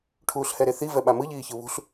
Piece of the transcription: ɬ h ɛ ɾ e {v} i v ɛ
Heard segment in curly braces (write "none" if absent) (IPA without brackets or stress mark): θ